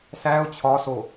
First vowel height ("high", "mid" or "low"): low